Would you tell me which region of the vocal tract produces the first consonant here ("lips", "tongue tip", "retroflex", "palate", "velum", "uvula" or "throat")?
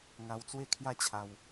velum